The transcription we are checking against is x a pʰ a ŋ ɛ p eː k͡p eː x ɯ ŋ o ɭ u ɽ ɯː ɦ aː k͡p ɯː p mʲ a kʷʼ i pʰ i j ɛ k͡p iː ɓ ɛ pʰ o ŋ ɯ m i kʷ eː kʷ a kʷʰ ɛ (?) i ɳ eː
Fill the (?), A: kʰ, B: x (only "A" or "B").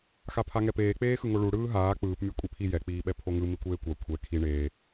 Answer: A